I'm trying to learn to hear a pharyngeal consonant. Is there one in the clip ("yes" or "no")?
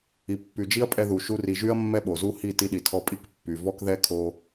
no